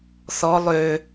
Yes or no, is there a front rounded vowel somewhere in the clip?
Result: yes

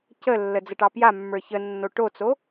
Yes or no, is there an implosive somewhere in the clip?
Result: no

